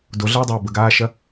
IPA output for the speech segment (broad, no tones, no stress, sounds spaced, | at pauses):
d o ɮ ɐː dˤ ɐː b ə ɡ aː ʃ ɐ